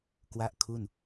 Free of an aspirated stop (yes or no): no